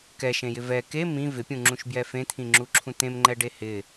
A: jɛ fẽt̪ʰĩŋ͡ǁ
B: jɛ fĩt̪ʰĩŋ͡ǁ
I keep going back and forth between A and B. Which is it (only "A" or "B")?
A